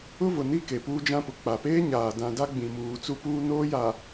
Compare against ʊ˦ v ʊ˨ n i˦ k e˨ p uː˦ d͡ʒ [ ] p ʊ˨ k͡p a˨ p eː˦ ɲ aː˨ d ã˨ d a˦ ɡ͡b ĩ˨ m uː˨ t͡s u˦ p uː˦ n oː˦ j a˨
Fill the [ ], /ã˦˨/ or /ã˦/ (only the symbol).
ã˦